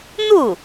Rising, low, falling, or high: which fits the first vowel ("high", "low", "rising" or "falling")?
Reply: falling